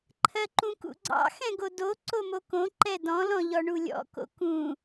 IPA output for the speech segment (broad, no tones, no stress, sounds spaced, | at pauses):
ǃʰ ɜ ǃ ũ k ṵ ɡ͡ǀ ɑ̰ x ɛ̃ ɡ o d o ǀ o m o k õ ǃ ɛ d ɔ̃ l ɔ̃ ʎ ɔ ɳ u lʲ ɔ̰ k o̰ k ũ